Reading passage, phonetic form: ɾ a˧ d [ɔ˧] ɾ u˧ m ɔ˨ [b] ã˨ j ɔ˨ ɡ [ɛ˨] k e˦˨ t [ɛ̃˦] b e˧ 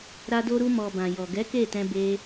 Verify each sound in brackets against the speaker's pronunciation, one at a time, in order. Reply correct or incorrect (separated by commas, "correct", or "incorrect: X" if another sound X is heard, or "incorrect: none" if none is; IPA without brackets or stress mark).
incorrect: o˧, correct, incorrect: ɛ˨˦, incorrect: ɛ̃˧